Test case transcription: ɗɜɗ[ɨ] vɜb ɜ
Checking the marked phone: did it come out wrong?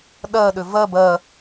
yes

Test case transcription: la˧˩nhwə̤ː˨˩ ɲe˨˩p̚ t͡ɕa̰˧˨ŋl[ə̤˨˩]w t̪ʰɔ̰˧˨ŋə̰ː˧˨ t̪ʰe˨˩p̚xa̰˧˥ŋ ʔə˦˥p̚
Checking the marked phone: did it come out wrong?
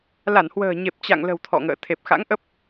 no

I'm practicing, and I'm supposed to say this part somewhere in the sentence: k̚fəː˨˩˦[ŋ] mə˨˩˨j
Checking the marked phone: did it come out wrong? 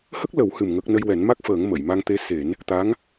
no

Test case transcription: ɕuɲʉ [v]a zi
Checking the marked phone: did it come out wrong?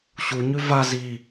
no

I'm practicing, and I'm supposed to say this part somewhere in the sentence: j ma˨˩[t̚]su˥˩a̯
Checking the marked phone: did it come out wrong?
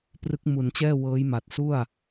no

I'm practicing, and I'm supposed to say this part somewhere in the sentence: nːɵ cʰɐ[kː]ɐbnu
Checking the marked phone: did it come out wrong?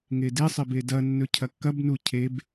no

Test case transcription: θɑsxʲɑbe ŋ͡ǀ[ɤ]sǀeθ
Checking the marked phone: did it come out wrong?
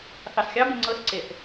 no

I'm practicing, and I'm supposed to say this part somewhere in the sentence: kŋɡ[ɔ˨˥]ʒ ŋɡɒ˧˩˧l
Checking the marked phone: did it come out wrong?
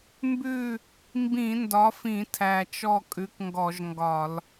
yes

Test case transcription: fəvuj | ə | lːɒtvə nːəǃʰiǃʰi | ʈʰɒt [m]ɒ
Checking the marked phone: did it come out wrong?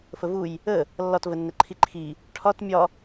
yes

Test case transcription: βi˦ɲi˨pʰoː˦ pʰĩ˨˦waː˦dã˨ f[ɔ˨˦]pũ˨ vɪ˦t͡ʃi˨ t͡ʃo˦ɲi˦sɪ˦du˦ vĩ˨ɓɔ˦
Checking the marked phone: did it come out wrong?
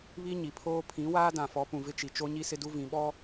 no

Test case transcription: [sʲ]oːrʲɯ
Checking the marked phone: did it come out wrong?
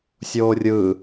no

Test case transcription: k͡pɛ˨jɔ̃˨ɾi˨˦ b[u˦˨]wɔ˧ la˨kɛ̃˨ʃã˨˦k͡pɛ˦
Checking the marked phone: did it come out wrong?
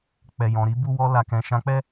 no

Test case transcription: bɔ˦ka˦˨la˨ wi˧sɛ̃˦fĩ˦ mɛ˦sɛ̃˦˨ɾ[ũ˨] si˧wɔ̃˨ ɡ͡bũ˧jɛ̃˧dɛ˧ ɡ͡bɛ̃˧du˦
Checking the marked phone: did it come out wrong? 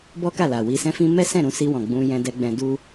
yes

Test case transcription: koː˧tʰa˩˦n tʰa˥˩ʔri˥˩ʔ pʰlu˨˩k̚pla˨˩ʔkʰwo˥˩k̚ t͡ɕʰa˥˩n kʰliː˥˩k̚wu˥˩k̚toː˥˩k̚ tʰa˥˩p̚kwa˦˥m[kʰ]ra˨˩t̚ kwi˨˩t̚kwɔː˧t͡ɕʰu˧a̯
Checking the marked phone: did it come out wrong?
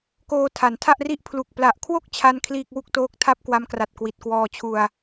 yes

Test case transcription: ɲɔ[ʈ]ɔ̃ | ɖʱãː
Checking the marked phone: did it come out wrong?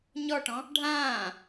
no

